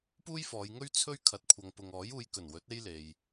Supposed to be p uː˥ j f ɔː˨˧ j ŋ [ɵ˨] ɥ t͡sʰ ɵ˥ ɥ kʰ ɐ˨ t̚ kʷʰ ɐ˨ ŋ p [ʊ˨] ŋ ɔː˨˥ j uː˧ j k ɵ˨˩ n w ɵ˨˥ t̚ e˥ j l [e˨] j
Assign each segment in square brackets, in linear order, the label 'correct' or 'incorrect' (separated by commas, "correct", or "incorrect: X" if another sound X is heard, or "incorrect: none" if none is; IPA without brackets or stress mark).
incorrect: ɵ˥, correct, correct